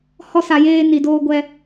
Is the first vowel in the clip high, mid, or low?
mid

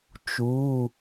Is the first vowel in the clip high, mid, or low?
high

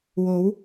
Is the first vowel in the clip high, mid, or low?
mid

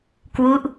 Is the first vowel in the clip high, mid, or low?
high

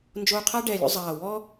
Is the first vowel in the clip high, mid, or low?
mid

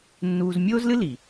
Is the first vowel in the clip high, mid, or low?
high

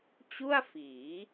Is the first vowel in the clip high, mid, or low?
high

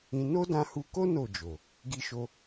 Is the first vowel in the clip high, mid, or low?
high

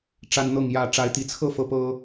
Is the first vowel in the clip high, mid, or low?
low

